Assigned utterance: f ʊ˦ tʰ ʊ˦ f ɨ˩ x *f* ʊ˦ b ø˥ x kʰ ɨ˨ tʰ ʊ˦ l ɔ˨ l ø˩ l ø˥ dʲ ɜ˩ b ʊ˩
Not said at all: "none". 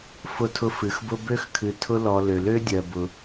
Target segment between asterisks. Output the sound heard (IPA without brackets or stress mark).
b